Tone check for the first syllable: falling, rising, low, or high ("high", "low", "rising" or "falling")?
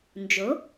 rising